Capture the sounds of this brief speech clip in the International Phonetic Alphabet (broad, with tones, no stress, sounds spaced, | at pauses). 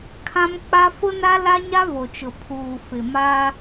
kʰ ã˦ m k͡p a˦ f ʊ˦ n a˦ l a˦ ɲ a˦ v o˨ t͡ʃ ʊ˨ pʰ uː˨ f ɪ˨ m a˦